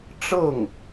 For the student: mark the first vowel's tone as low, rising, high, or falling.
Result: falling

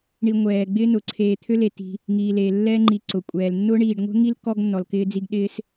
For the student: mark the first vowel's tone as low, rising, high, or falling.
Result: low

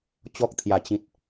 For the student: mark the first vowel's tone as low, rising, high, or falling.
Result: high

